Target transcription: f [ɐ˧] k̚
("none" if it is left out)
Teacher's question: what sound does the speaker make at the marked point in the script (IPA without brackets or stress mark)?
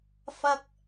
ɐ˧